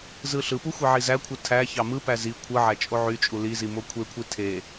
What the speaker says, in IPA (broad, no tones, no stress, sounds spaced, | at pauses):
z ɯ ɬ ɯ p u xʷ e ʕ i z æ kʷʰ ɯ tʰ æ ç ɑ m ɯ p æ z i kʷʰ ɯ ʕ æ t͡ʃʼ o ʕ y t͡ʃʼ u l i z i m o kʷʰ e kʷʰ i tʰ e